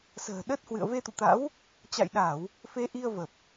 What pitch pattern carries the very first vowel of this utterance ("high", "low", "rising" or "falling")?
low